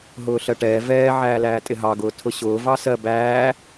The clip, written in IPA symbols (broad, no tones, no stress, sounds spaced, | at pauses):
ɦ ʊː ɬ ɜ ʈ ɛː v ɛː ʕ æː l æː tʼ ɪ ɦ ɑ ɡ ʊː tʰ ʊ ɕ ʊː v ɑ s ɜ b æː